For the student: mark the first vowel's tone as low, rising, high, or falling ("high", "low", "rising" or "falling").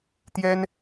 high